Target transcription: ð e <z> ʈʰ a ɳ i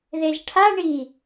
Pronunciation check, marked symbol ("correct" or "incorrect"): correct